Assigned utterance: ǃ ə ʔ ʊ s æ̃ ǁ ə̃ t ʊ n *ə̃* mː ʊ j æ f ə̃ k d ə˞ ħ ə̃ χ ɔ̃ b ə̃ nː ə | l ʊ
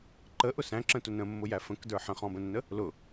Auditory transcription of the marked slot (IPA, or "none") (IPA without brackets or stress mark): ə̃